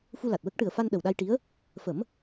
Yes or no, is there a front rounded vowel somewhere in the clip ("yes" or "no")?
no